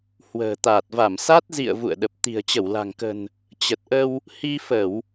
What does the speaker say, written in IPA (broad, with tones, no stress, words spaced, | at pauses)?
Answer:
hwə̤ː˨˩t̪aː˨˩t̚va˧˩m sa˦˥t̚ zḭ˧˨ə̯ vṵ˧˨ə̯ɗə˨˩p̚ t̪i̤˨˩ə̯t͡ɕə˧˩wla̤˨˩ŋkə̤˨˩n | t͡ɕə˨˩t̚ʔə˧w | hi˧fə˧˩˨w